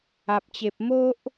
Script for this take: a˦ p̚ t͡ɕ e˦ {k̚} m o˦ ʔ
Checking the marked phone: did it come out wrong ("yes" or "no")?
yes